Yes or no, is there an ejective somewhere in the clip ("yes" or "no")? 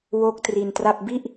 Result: no